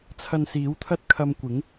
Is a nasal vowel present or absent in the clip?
absent